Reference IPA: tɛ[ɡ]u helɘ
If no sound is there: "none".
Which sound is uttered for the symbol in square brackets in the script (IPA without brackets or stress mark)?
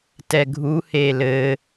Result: ɡʱ